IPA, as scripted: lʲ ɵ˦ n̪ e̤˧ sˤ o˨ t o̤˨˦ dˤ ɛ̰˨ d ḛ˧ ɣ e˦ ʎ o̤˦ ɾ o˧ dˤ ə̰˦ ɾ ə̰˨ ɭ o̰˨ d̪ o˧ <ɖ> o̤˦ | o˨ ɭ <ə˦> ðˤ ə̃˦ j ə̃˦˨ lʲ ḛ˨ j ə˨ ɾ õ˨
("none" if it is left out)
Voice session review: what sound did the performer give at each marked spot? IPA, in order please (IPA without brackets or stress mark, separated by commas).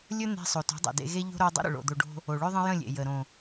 ɖ, ɵ˦